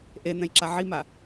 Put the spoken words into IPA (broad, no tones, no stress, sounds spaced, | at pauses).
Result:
ʔ e n̪ ɛ̃ j ǁ a ʕ i m a